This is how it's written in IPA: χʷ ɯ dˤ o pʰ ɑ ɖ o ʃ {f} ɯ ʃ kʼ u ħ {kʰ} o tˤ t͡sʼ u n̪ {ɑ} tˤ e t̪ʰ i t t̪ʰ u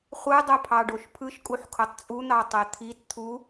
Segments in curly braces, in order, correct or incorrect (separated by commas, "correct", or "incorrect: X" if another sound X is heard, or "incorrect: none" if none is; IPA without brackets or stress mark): incorrect: pʰ, correct, correct